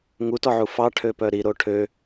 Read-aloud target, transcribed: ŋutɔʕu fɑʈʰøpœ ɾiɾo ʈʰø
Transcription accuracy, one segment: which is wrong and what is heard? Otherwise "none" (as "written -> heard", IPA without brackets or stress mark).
none